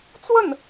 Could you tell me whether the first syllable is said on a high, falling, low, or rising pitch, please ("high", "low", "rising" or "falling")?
falling